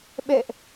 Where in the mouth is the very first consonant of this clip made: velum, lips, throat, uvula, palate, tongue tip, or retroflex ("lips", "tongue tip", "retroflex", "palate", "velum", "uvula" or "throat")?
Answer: lips